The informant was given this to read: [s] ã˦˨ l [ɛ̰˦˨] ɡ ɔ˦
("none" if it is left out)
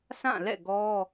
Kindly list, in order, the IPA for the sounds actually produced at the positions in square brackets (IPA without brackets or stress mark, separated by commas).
s, ɛ̰˦˨